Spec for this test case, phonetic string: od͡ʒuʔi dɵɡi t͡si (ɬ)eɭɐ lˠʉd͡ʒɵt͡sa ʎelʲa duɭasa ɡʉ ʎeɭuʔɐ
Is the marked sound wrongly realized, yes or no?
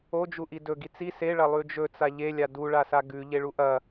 yes